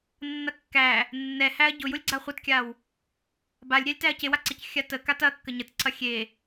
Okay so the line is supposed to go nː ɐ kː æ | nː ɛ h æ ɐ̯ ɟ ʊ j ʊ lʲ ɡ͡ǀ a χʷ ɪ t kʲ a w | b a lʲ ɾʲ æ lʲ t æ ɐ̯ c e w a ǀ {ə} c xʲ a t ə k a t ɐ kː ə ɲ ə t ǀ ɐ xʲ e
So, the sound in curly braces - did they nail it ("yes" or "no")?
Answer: no